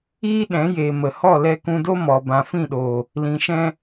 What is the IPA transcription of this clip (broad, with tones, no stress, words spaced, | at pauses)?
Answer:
iː˦ ɗɛ̃˨˦jeː˨ mə˨ hɔ˦˨lɛ˧kũ˧do˦ mɔ˨ bã˨fĩ˦˨ɗoː˨ | lĩ˨ʃɛ̃˧